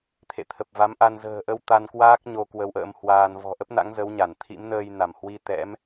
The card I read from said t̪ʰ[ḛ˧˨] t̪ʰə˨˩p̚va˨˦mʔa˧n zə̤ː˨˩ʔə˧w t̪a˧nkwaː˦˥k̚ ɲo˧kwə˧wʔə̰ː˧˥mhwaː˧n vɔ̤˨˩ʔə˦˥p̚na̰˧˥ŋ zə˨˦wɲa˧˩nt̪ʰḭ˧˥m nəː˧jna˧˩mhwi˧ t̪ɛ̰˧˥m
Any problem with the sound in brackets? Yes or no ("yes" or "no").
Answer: no